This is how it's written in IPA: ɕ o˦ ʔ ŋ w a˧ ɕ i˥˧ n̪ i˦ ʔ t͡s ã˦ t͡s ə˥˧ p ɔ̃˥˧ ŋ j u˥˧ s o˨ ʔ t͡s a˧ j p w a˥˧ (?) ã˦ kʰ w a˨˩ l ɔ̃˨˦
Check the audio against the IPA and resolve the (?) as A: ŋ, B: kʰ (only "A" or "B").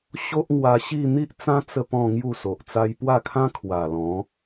B